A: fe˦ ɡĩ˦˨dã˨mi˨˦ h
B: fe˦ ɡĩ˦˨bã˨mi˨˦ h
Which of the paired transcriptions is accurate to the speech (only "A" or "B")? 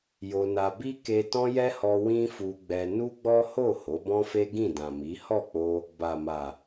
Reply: A